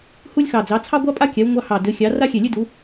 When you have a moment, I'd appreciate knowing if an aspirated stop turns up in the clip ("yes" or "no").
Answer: yes